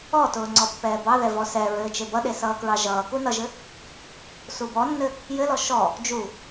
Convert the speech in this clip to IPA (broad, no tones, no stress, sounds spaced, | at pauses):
ɔ t ʊː ŋ͡ǀ ɔ pː ɛː b ɑ ð ɛ v ɔ s ɛ ɹ ɘː t͡ʃ e b ʌ ɗ e s ʌː k ɹ ɑ ʒ ʌː k u n ʌ ʒ ɘ | s u b ɔ nː ɘ | j ɘ l ɔ ʃ ɔ | d͡ʒ u